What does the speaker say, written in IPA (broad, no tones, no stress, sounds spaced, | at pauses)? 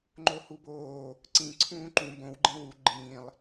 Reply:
ŋ͡ǃ o h u b oː | ǀ ĩ ǀʰ ũː ǃ ũ b õ w ɡ͡ǃ ĩ w u ɡ͡ǃ ĩː lˠ